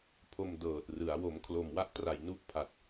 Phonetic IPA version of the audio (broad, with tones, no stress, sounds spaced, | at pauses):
pʰ o˧ m d ɤː˨˩ t̚ r ɯ˩˦ a̯ w o˩˦ m kʰ l o˨˩ m w a˥˩ ʔ t r a˨˩ j n u˥˩ ʔ pʰ a˨˩ t̚